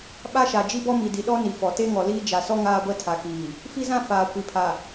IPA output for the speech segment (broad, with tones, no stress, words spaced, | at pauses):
ɓa˦ʃa˨ d͡ʒi˦bɔ˦mi˨ di˨ɗɔ˦ni˨fɔ˨ te˦ŋɔ˨liː˦ d͡ʒa˨sɔ˦ ŋaː˦ɡʷɛ˦tʰa˨kiː˨ | fi˦zã˦ faː˨kʷi˨pʰa˨